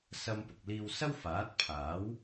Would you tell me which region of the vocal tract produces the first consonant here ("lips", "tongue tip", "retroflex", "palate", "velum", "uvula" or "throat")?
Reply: tongue tip